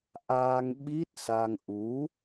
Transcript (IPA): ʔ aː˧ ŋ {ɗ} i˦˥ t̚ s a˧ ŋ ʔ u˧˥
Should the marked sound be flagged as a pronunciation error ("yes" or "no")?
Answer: yes